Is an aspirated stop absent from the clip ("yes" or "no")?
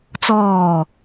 yes